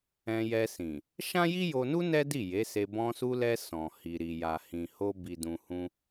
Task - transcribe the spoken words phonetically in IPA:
ɛ̃˧ jɛ˧sĩ˨ | ʃã˦ji˦jo˧nu˦ nɛ˦di˦˨je˨˦se˧ bɔ̃˧su˧lɛ˧ sɔ̃˨hi˨ɾi˨ ja˨ hĩ˨ho˧ bi˨dũ˨hũ˧

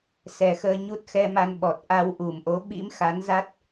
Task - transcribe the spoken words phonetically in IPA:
sɛ˨˩xəː˧ɲu˦˥t̚ xɛ˧ ma˧nɓɔ˨˩t̚ ʔa˧wʔu˨˩mʔo˨˦ ɓḭ˧˥mxa˨˦nza˦˥t̚

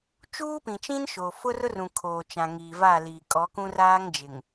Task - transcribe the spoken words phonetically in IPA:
t͡ʃuː˦pĩ˨t͡ʃĩ˦n ʃoː˨fʊ˦rʊ˦rũ˨ kʰoː˨t͡ʃã˨ ŋiː˨va˦˨ liː˨kʼɔ˨˦kũ˦r aː˦ŋd͡ʒɪ˨ŋ

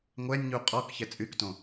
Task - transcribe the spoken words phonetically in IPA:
ŋʷɛnʲɲu qʼɔkçɛ t͡sʼyktõ

